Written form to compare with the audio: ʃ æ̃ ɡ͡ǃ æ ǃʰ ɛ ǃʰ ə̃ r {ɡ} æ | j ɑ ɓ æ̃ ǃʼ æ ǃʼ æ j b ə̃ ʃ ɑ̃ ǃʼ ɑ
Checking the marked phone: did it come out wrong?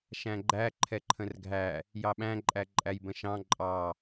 yes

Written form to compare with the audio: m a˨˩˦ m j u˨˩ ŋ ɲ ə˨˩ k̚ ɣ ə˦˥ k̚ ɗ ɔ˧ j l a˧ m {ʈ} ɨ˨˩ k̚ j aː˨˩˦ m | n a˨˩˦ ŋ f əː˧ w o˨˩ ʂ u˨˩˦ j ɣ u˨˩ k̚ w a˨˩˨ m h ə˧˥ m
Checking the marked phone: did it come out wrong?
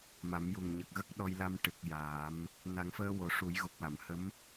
no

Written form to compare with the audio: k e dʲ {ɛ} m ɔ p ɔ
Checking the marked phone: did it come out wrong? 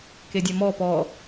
no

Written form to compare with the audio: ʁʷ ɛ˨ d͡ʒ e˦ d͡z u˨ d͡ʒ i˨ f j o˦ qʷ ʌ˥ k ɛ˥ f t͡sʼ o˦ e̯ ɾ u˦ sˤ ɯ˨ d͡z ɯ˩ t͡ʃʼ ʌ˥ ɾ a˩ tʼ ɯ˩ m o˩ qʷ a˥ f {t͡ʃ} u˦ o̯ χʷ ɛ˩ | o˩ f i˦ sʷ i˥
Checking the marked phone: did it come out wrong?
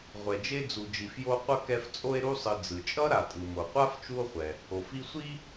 no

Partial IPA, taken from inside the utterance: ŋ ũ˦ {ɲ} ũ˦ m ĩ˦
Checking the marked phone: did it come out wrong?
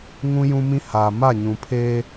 yes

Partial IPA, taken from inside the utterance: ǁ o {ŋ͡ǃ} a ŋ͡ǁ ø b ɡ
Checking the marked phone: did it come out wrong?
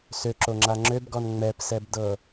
yes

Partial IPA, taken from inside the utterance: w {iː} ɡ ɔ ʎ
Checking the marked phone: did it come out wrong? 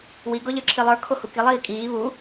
yes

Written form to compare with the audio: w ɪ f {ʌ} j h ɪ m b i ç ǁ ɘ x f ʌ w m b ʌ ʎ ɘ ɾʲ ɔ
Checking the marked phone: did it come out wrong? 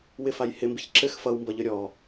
yes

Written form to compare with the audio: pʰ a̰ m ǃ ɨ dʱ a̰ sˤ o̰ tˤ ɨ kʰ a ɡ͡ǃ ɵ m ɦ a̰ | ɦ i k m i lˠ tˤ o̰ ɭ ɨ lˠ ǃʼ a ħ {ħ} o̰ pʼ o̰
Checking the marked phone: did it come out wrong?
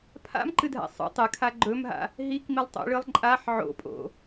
yes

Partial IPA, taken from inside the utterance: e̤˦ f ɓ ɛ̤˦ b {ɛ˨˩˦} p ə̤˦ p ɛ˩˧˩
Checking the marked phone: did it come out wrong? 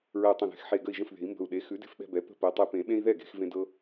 yes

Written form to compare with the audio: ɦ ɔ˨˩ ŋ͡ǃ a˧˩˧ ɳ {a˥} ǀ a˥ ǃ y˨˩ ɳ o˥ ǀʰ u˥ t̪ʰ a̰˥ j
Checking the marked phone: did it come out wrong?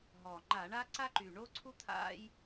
no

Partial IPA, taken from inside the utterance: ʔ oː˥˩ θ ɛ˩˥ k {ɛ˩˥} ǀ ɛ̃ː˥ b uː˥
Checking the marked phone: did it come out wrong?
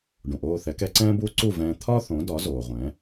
no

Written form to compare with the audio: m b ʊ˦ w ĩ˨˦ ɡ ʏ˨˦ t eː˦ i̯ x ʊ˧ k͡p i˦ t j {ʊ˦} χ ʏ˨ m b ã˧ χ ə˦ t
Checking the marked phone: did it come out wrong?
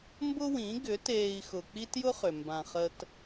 no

